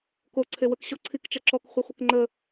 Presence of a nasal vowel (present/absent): absent